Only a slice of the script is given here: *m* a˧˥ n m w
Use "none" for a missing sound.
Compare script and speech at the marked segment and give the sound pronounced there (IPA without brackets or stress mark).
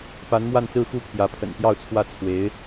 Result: p